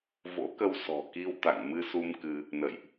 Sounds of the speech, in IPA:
vo̰˧˥kə˧w sɔ̤˨˩ki˧wt̪a̰˧˨ŋ mɨ˧su˧m kɨ˧ | nə̰˧˨jʔ

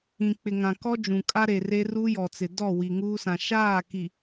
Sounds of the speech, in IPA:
ĩ˨k͡pɪ˨ŋã˨kɔ˦ d͡ʒũ˨kʼa˦ɾe˨ re˦ ruː˦jɔ˨t͡sɪ˨ dɔ˦˨wi˨ ŋuː˦sã˨ ʃaː˦˨ki˨

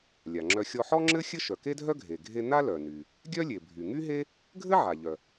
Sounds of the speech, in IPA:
lʲa˩ŋ͡ǁœ˧ xʲɔ˧ħɔ˥ŋ͡ǁɘ˥ xʲɘ˥ʃœ˩ke˥dʱœ˥ ɡʱe˩ɡʱe˧ n̪a˥lœ˩ny˩ | ɡʲœ˥lʲe˩ bʱy˩ŋy˥ɦe˥ | ɡʱɘ˥ʕa˩ʎœ˩

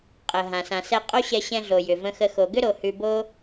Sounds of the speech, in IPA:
qʼə˩ ɦã˩ sã˩sɛ˧ qʼo˥ɕɛ˧ ɕɛ̃˧ɮo˩ jʏ˩ və̃˧xə˧ xo˩ɡʏ˥ɾo˩ hʉ˧bo˥

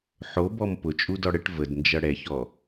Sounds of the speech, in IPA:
ħobɔm pʊt͡ʃʼudɔ ɽəʈ vədnd͡ʒʌ ɽɛçɔ

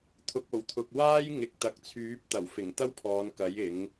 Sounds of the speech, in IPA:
t̪ʰʊ˨k̚o˨˩wt̪ʰʊ˨k̚ waː˥jŋɪ˨k̚ t̪ɐ˨k̚t͡sʰyː˨˥p̚t̪ɐ˨˩wfɪ˨˩ŋ t̪ɐ˥wpʰɔː˨˧nkɐ˨˥j ɪ˨˥ŋ

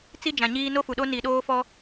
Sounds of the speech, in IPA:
t͡si˦ d͡ʒã˨ɲiː˦ no˦fu˨ɗo˦ ni˨ ɗoː˦fɔ˦

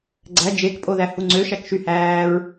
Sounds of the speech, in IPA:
ɡ͡ǀæ d͡ʒekpʼoðæhu ŋ͡ǀøʃækʃyhæːɹ

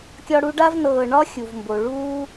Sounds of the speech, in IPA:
kʲɒ˦ɽu˦ɖa˥v nɤː˨ ɳɒ˥xʲu˩vmbo˩ ɭuː˦

